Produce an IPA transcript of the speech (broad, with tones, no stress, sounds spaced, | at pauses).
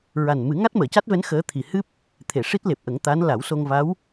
ɹ a˨˩ n m ɨ˨˩˦ ŋ a˦˥ t̚ m əː˨˩˨ c a˦˥ t̚ v ɛ˧˥ n x əː˧˥ t̪ʰ i˨˩ h ɨ˦˥ p̚ | t̪ʰ e˨˩˨ ʂ i˦˥ t̚ l e˨˩ p̚ ʔ ə˨˩˦ ŋ t̪ a˧˥ n l a˨˩˦ w s o˧ ŋ v a˧˥ w